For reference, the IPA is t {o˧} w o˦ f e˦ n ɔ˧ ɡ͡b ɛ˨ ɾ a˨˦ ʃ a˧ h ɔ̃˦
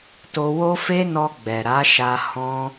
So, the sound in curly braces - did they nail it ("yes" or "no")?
yes